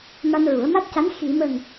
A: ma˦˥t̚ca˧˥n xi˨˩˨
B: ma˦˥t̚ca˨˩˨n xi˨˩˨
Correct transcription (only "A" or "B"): A